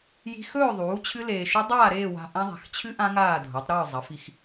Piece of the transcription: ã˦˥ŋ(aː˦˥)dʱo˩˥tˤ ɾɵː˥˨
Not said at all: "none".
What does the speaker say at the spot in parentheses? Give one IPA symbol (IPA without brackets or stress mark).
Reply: aː˥˨